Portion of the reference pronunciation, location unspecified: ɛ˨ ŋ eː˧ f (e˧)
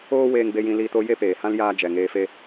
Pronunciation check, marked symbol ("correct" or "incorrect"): incorrect